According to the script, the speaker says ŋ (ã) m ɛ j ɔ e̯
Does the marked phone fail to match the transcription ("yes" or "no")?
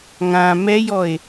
no